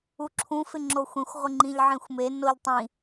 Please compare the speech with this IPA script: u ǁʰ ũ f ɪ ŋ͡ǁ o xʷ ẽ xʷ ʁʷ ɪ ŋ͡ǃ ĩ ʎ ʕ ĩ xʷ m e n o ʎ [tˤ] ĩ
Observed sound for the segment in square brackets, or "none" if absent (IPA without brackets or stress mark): tˤ